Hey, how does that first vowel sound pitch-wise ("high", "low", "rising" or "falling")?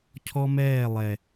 high